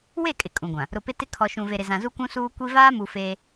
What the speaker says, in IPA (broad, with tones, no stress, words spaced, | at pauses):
we˦˨kʼɪ˨ kʼũ˨ɡʷã˨ | ɾʊ˨pɪ˦tɪ˦ kʰɔ˨ʃũ˨ ve˨ɾɪ˨ zã˨zu˦kʷũ˦ suː˦kʷi˦ vaː˦mu˨ feː˦